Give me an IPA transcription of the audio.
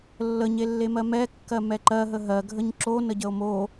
lːəɲelːemɜ mɛ kːɜmɛǃɜɦə ɦɜɡʱəɲ ǁonəɟəo̯ mo

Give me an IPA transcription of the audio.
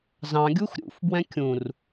zɑ̃ɡʲux ɾʲṵfbwɛ̃ kʲũr

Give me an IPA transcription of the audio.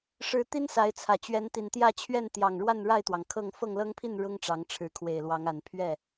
ʂɻ̩˨˦ t̪i˦nsa˨˦ɪ̯t͡sʰä˨˩ t͡ɕɥɛ˨˦nt̪i˨˩nt̪jä˥˨t͡ɕʰɥɛ˥˨n t̪jɑ˨˩ŋ ɻwa˥˨nɻa˥˨ɪ̯t̪wɑ˩ŋkʰɤ˥˨ŋ fɤ˥˨ŋlɤ˦ŋpʰi˥˨n ɻʊ˦ŋʈ͡ʂɑ˨˦ŋʈ͡ʂʰɻ̩˨˦ kʰwe˨˩ɪ̯lwɑ˨˦ŋa˨˩n pʰɥɛ˥˨

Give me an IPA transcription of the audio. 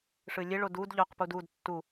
ʂɨlʲeɭo dud ʎœqpud ud tːu

